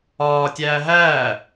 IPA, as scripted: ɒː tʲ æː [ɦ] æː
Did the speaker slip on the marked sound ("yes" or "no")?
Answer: no